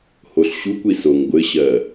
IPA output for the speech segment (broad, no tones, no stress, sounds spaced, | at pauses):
h o ɬ ɕ u kʷ i s o ŋ ɡʷ ɘ ɕ ɜ